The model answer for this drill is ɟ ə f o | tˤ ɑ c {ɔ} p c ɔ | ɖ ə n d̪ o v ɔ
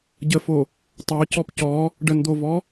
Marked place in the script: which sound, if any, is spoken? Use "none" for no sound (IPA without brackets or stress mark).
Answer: ɔ